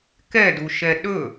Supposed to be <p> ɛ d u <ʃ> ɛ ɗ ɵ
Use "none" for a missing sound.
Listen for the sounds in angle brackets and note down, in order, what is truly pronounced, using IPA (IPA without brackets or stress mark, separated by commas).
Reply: k, ʃ